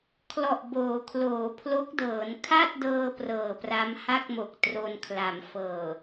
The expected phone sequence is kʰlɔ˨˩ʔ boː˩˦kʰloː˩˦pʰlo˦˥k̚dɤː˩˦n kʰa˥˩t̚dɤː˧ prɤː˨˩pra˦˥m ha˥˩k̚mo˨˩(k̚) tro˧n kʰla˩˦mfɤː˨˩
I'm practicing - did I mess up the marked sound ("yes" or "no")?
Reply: no